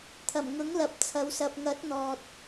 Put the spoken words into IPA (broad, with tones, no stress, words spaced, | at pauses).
t̪ʰɐ˨˩mŋʊ˨˥ŋ lɐ˨˥p̚t͡sʰɐ˨˧wsɐ˧p̚ ŋɐ˨˥t̚n̪ɔː˨t̚